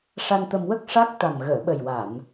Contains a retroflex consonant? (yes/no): yes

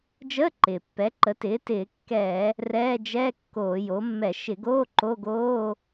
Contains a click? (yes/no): yes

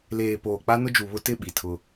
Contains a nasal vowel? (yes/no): no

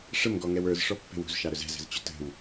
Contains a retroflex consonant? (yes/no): yes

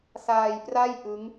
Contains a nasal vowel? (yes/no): no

